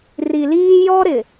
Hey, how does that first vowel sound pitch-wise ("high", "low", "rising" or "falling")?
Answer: low